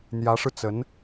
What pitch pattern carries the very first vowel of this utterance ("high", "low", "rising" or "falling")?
rising